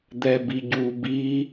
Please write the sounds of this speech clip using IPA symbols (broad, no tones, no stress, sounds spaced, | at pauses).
d̪ ɛ b i ɟ u b i